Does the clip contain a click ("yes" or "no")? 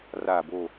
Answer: no